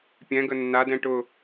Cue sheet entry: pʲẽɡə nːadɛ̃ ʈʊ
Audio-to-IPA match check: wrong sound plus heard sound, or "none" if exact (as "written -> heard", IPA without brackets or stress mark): ẽ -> ɛ̃